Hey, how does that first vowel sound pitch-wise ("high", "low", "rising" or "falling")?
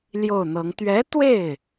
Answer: falling